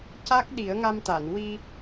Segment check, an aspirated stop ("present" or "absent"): absent